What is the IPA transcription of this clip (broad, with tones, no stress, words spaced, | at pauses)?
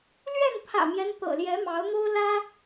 lɥɛ˥˨npʰä̰˨˩mjɛ˦n t̪ɤ̰˨˩ljɛ˨˦mɑ˨˦ʊ̯n̪o˦ʊ̯ lä˦